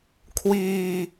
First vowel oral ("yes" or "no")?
yes